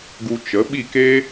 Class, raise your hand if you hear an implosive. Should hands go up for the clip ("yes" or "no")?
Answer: yes